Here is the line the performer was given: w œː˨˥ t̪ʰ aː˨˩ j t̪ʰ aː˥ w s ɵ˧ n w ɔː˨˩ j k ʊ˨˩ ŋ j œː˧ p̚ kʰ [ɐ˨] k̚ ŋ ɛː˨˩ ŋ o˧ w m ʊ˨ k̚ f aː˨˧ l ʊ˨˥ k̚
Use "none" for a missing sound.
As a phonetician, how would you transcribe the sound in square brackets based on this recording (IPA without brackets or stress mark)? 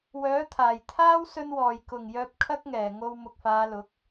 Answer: ɐ˥